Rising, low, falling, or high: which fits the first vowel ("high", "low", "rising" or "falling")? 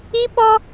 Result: high